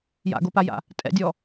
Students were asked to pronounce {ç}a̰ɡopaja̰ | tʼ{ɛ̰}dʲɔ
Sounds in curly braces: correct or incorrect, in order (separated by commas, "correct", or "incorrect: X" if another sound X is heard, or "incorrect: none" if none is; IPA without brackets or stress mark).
incorrect: j, correct